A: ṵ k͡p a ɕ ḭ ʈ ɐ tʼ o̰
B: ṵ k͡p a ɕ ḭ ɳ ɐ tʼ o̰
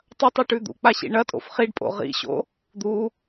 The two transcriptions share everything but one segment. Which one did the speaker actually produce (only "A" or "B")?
B